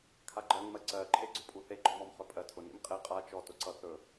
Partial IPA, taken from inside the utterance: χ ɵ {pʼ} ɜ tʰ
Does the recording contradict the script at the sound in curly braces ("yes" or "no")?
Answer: no